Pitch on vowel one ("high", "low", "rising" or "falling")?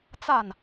falling